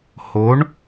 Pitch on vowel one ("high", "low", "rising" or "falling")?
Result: rising